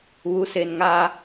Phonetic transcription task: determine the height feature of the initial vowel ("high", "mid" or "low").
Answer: high